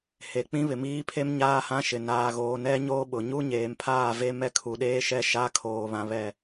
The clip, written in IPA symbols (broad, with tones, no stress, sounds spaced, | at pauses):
h e˨ k͡p ĩ˦ β ɪ˨ m iː˦ pʰ e˦ m ɲ aː˦ h ã˦ ʃ ɪ˨ n aː˨ ɣ oː˨ n ɛ˦ ɲ oː˦ ɓ ʊ˨ ɲ u˦ ɲ eː˨ m pʰ aː˦˨ v e˦ m ɛ˦ kʰ u˨ ɗ eː˦ ʃ ɛ˦ ʃ a˦ kʰ oː˨ β ã˨ β ɛ˦˨